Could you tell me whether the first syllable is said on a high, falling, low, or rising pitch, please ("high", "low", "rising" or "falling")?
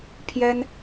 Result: high